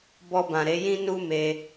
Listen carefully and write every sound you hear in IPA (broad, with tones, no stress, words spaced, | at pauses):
bɔ˧bã˨ɾe˨˦jĩ˦ nu˦me˧